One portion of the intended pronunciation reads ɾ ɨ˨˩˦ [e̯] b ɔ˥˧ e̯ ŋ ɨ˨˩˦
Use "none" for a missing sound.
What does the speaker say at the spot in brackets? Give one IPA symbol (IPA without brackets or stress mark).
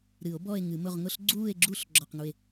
o̯